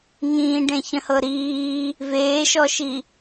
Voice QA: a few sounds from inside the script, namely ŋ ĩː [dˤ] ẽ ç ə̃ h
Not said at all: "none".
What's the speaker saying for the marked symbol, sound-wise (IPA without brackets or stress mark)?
ɖ